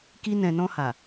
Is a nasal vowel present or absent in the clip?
present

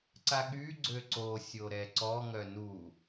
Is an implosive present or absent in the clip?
present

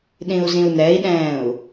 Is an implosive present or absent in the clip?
present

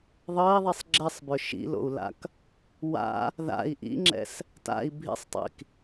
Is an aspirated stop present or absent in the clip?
absent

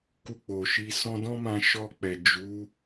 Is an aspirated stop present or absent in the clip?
absent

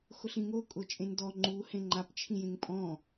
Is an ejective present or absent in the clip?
present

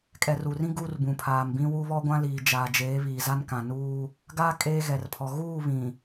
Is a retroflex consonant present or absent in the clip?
absent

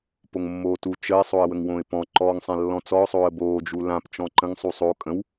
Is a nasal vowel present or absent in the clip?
present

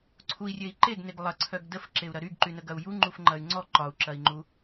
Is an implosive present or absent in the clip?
absent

